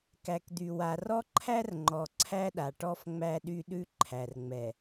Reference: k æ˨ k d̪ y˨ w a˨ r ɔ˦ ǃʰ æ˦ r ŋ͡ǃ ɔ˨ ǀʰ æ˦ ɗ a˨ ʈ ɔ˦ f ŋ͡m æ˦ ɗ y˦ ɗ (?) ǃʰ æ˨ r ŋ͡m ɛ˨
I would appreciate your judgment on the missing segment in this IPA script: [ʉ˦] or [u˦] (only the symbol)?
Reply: ʉ˦